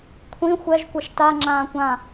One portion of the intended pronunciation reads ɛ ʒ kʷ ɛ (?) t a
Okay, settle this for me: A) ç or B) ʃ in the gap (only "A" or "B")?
B